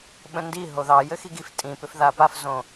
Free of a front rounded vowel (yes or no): no